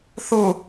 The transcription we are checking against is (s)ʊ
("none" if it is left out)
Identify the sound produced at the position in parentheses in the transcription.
θ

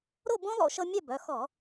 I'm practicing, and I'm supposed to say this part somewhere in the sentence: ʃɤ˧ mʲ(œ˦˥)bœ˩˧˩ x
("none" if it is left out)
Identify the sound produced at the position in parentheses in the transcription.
œ˥˨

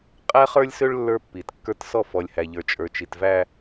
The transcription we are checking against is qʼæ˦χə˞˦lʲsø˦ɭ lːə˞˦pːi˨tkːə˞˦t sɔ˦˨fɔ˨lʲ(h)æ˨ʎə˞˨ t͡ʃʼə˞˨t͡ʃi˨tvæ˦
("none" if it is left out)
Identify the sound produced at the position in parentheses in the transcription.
h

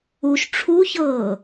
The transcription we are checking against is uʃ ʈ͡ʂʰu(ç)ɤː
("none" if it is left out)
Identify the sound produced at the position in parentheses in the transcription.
ç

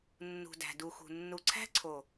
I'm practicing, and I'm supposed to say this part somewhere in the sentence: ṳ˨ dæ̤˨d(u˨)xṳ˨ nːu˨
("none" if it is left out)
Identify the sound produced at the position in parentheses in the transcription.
u˨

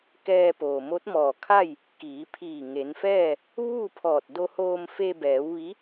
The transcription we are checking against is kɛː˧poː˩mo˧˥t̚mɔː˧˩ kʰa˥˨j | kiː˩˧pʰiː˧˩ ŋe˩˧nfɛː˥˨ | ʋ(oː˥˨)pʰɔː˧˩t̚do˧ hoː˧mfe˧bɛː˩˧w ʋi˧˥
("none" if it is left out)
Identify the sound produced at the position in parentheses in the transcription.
uː˥˨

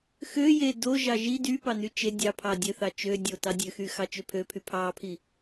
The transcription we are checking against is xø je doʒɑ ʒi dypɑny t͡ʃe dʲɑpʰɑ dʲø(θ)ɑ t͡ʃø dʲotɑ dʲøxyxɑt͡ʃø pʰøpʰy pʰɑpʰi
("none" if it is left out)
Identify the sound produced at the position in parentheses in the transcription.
θ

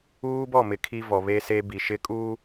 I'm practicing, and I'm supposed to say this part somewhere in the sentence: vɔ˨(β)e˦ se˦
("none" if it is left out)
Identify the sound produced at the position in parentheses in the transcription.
β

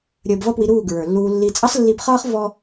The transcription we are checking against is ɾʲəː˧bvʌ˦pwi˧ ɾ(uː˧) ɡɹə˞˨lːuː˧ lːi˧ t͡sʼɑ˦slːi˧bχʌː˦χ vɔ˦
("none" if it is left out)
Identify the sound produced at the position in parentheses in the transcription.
uː˦˨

